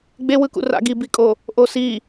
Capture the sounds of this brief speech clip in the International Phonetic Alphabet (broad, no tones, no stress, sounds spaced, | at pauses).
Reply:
ɡ͡b e w ɯ k ṵ r a̰ ɡ i b i kʼ o | ʔ o s i